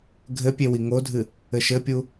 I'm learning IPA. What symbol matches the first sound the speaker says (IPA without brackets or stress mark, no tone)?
ɡʱ